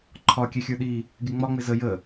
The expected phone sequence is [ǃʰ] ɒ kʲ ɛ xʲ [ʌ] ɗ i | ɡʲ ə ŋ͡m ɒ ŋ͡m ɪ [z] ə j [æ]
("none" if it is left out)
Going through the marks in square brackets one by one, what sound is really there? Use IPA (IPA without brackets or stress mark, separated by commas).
ǃʰ, ə˞, z, ə